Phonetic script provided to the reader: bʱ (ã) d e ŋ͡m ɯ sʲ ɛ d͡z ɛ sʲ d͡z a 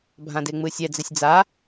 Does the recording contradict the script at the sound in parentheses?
no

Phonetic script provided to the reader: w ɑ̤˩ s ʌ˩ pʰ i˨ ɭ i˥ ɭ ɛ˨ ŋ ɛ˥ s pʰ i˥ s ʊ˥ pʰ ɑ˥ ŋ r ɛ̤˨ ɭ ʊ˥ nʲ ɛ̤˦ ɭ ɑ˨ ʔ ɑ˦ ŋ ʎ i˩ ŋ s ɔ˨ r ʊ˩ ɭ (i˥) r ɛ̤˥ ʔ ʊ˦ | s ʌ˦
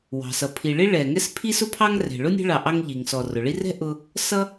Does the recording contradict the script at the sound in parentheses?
yes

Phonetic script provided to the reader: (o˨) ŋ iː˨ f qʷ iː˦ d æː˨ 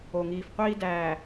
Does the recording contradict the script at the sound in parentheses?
no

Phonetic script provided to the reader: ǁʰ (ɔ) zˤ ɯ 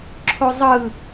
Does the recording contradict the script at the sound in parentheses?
yes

